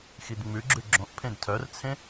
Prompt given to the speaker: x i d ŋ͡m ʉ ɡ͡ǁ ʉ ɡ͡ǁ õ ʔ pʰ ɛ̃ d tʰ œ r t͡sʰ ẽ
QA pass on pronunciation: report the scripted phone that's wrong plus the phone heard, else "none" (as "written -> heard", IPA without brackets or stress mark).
ɛ̃ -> ẽ